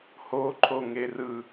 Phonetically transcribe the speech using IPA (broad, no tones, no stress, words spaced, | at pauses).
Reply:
hoǃʰo ŋerɯ